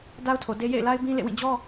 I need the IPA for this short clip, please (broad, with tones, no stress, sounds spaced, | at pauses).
d a˦ ʊ̯ tʰ o˨ d e˦ j ḛ˦˨ ɪ̯ l a˦ ɪ̯ b ĩ˦ l ḛ˦˨ w ĩ˦˨ d͡ʑ ɔ˦